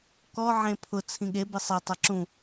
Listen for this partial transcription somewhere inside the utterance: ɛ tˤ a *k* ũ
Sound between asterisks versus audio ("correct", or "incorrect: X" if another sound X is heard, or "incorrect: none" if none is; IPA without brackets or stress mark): incorrect: ǁ